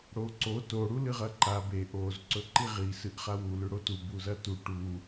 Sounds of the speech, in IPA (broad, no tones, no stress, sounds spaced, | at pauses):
ɽ o ǀ o t o ɽ u l ɨ ʁ ɐ ǃ a b e ʔ o z ǀ ɵ ǃ i ʁ i s ɨ ʔ χ a w u l ʉ ɽ o t u b u z ɐ t u ʈ u